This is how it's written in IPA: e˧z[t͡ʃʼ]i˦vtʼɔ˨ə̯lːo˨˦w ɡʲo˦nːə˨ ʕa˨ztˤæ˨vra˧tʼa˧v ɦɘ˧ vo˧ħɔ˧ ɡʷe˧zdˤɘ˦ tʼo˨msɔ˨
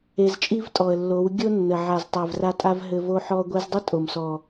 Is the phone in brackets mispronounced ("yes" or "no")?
no